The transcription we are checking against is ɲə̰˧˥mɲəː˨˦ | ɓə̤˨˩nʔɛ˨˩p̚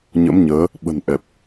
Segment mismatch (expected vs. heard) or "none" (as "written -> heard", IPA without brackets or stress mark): none